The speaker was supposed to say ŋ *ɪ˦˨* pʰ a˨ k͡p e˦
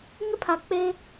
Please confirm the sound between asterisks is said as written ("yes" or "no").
no